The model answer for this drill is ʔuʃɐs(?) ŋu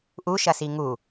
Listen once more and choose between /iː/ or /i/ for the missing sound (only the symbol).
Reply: i